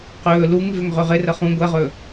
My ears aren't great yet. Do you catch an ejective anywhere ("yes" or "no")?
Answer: no